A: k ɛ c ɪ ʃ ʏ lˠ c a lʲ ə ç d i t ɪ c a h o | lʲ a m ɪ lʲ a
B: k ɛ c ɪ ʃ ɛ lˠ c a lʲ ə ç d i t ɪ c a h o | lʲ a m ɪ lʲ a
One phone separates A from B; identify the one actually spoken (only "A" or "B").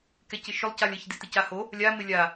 A